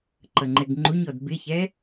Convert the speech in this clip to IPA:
ǃʌŋ͡ǃɛɡŋ͡ǃuɲɔd bɪçɛ

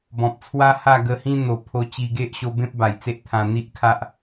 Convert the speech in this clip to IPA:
bɔ̃˨p̚t͡sʰwa˦ha˥˧ ɡə˧hĩ˦ n̪o˨˩ pʰo˧t͡ɕi˧ɡe˦ʔɕo˧ bẽ˦p̚ba˨˩jt͡se˦ʔ t̪ʰã˧n̪i˦ʔkʰa˦ʔ

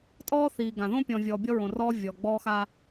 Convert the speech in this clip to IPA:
tʼɔː˦θiː˨ɡã˨ ðõ˦pʲɔ̃˨vʲɔː˨ bʲɔ˦ɹõ˨rɔː˦ vʲɔ˨ɡ͡bɔː˦xa˦

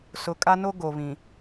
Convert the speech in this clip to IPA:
sʊ˨kʼa˦no˦ ɡo˨βĩ˨

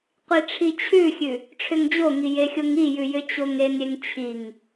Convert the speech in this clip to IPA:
qʷiʈ͡ʂʰit͡ɕʰʉxʲʉ | ʈ͡ʂʰʏŋd͡ʑoŋi jexʲoŋijʉ jʏt͡ɕoŋenɾʲeŋ t͡ɕʰiŋ

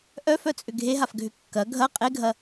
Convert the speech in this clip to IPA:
ʔœfœt͡sʼʏ ɡʱeɦafɡʱʏ kːɐ ɡʱɐ qʼeɡʱɐ

